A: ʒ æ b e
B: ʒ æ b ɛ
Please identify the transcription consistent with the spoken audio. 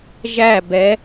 B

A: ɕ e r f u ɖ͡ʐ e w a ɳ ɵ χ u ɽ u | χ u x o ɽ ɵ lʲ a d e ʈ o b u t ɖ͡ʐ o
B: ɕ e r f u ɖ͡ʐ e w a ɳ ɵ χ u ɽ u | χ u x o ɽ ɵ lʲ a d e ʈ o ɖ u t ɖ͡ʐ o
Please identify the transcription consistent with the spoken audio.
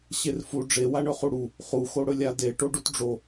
B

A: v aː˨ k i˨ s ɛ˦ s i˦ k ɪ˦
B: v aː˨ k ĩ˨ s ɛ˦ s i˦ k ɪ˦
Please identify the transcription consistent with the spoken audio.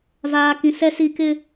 B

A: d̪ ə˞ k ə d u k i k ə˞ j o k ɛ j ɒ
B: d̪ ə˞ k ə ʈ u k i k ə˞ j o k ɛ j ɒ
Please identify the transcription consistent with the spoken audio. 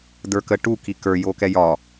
B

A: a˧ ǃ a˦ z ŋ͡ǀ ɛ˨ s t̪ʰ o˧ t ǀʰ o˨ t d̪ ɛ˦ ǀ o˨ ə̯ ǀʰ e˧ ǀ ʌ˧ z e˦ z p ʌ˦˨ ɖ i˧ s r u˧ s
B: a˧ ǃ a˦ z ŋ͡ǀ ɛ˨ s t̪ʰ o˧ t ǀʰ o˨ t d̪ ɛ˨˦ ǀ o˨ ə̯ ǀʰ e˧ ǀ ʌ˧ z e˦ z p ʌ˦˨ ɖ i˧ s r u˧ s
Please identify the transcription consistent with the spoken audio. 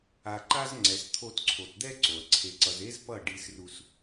A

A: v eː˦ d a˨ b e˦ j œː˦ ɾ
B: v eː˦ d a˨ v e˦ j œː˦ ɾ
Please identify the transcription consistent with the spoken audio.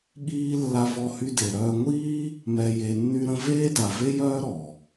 B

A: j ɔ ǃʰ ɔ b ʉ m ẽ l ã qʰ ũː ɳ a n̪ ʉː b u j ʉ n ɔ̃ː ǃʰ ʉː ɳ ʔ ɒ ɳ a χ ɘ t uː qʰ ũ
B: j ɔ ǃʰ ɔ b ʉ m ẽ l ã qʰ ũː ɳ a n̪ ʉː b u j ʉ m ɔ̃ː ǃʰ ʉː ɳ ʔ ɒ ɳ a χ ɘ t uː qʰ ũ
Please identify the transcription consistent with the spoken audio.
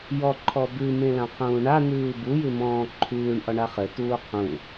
B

